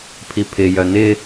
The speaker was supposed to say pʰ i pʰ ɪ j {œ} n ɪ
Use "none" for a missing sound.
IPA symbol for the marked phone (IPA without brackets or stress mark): œ